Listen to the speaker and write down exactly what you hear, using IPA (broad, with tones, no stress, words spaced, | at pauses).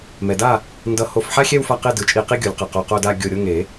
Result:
mɛ˩da˥˩ | ndʌ˧˩ ho˧˩fħa˥˧xʲɛ˥˧w fa˥˧qe˥˧dɯ˨˩˦ t͡ʃʼi˧˩qi˥˧ɡʲo˨˩˦lʲ qʌ˩qo˧˩ qo˥˧da˥˧ ɡʲo˧˩ɾʲo˥˧ ŋe˨˩˦